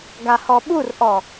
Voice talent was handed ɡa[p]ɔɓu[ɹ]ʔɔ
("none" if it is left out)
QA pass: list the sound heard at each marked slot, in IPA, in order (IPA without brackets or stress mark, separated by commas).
h, r